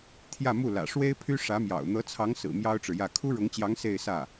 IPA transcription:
t̪ʰ j ä˥˧ m u˥˩ l ä̰˨˩ ʂ w e˥ ɪ̯ pʰ y˥ ʂ ä˧˥ m j ɑ̰˨˩ ʊ̯ n̪ ɤ˧˥ t͡sʰ ɑ˧˥ ŋ s ɹ̩˨˩ m j ɑ˥ ʊ̯ ʈ͡ʂ ɻ̩˨ j ä˥˩ kʰ u˥ ɻ ʊ˧˥ ŋ t͡ɕ j ɑ˧˥ ŋ s e˥˧ ɪ̯ s ä˥˩

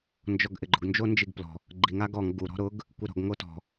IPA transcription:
n d͡ʒ ɔ ɡ ʔ ɪ ɡ͡ǃ ʊ ɡ n d͡ʒ o n d͡ʒ i ɡ p l ɔ̤ | ɡ͡ǃ i ŋ a ɡ ɔ ŋ ɡ u ɾ ɔ̤ ɾ ʊ ɡ | kʷ i ɾ ɔ̤ ɡ ŋ o t ɔ̤

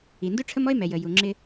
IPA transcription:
i˩ n d u˥ ʈ͡ʂʰ ə˥ m ɔ˥ e̯ m ɛ˩ j ə˩ j u˩ ŋ͡ǁ ɪ˧

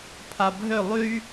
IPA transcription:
pʰ a bʱ ø lˠ y

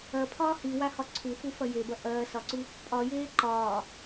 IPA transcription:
ɐ pʰ ɒː h i w a h ɒ ǀʰ u f u f ɐ j e b ɐ ʔ ɐː s ɒ ǀ u | pʼ ɒ j eː ǃ ɒː

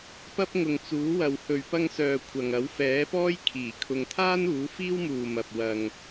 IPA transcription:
p ɐ˥ p̚ ŋ ʊ˨ ŋ t͡s uː˨˥ w ɐ˨ w h ɵ˨ ɥ p ɐ˧ ŋ s œː˨ kʷʰ ɐ˨ ŋ ɐ˨˥ w f ɛː˨˥ p ɔː˥ j kʰ iː˨˩ kʰ ʊ˨ ŋ t̪ʰ aː˥ n uː˨˥ f iː˥ w m uː˨ m ɐ˨ p̚ w ɐ˧ ŋ

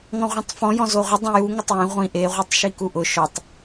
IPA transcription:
ŋ ɔ̃ ʁʷ ɛ̃ tˤ f ɔ̃ j ɔ̃ z o ʁʷ ɪ dˤ ɛ̃ j u ŋ ʊ tˤ j ẽ ʁʷ ĩ ʔ e ʁʷ e tˤ ʃ i k u ʔ ʊ ʃ ɔ tˤ

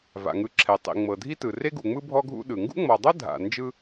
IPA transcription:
v a̰˩ ŋ ɯ˨ ǁʰ ɛ˩ tˤ ḭ˩ ŋ͡m ɤ˩ dʱ i˦ t ɯ˩ r e˥ ɡ u˨ ŋ͡m ɯ˥ bʱ ɔ˦ ɡʱ ṵ˦ ɗ ɯ˩ ŋ ɡ ṵ˥ ŋ͡m ɔ˨ dˤ ɤ˥ dʱ a̰˨ n d͡ʒ ɯ˥

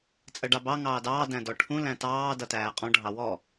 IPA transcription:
t͡sʼ ɜ ɖ ɑ b ɑ ŋ ɑː d ɑː d æ̃ d ɔ ʈʰ ũ l æ̃ t ɑː d ʌ t æː qʼ ɔ̃ ɖʱ ɑ w ɔ

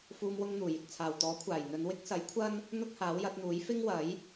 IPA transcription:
f uː˧ m w ʊ˧ ŋ n̪ uː˨˩ j ɪ˨ k̚ t͡sʰ aː˨˩ w t̪ ɔː˨˥ kʷʰ aː˨˩ j n̪ ɵ˨˧ n w ɪ˥ k̚ s ɐ˨˥ j kʷʰ ɐ˥ n | n̪ ʊ˥ k̚ h aː˨˥ w j ɐ˨˥ t̚ n̪ uː˨˥ j f ɪ˥ ŋ w ɐ˨˥ j

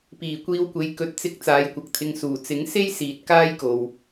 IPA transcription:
p iː˨˩ kʷ iː˧ w kʷ e˨˧ j k ɵ˨ t̚ t͡s ɪ˨˥ k̚ t͡s aː˨˧ j kʷ ɐ˨ k̚ t̪ʰ ɪ˧ ŋ s uː˨˩ t͡s ɪ˨˥ ŋ s e˥ j s iː˨ t̚ k aː˥ j k o˨ w

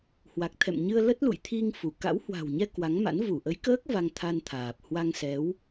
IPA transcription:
h w a˨˩ k̚ t̪ʰ ɛ̰˧˨ m ɲ ɨ˧ ə̯ l ə˦˥ t̚ l ṵ˧˨ j t̪ʰ i˧ ŋ f u˧˩ k a̰˧˥ w h w a̤˨˩ w ɲ ɛ˧ k w a˨˦ ŋ m a̰˧˥ n v u˧˩ ʔ ə˨˦ j k əː˦˥ k̚ v a˧ ŋ t̪ʰ a˧ n t̪ʰ aː˨˩ p̚ h w a˧ ŋ s ɛ˨˦ w

